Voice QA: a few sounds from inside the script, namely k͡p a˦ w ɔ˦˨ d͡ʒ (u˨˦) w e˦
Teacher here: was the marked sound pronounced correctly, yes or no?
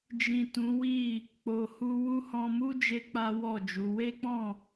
yes